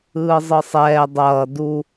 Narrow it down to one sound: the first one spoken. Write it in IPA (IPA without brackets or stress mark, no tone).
ɯː